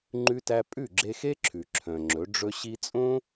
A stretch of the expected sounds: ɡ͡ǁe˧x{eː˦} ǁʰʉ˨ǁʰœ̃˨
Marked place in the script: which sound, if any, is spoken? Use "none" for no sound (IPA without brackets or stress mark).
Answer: e˦